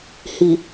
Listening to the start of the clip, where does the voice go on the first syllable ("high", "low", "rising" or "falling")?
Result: low